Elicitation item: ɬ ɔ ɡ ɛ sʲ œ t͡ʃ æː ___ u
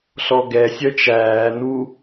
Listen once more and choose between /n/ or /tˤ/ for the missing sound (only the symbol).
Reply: n